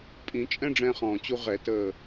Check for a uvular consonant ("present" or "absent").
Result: present